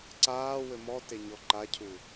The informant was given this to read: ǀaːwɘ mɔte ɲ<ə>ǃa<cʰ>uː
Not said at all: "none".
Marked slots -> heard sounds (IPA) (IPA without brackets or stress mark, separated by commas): ɔ, cʰ